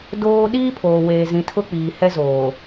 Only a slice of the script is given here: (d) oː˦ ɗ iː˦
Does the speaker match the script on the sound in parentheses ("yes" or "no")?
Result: yes